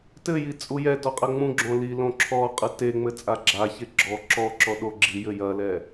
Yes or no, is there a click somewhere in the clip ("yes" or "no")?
yes